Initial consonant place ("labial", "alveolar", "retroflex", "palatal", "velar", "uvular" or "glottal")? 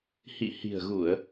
glottal